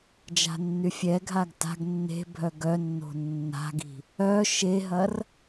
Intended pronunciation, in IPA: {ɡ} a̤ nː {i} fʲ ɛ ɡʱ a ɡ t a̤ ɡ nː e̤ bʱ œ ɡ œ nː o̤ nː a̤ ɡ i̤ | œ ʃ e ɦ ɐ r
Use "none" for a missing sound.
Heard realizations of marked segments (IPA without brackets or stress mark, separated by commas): d͡ʒ, y